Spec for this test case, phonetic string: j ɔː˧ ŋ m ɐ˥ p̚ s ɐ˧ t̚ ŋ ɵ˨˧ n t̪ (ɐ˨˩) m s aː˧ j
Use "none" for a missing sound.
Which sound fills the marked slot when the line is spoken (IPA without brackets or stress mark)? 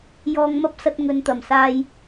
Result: ɐ˨˩